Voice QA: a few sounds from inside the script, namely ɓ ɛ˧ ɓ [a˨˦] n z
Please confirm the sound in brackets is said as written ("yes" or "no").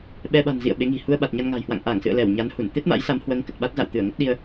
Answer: no